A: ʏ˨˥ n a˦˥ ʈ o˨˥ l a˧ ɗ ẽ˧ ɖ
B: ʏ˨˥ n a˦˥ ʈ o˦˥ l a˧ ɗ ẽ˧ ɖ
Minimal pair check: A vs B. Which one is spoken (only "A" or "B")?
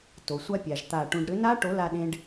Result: A